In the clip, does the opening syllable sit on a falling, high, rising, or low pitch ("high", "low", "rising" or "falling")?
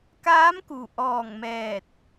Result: rising